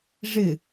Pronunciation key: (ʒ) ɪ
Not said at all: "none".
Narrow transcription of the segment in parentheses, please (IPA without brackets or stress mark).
ʐ